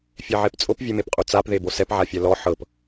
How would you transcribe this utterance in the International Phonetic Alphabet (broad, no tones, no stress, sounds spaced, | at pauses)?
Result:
fʲ e ʕ e p t͡sʼ o p vʲ e m e p qʼ o t͡s a p ð e b o s ɛ p ʕ a fʲ ɛ l ɔ ħ ɤ p